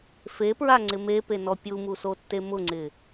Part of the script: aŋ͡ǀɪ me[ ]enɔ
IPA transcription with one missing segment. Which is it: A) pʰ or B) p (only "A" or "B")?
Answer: B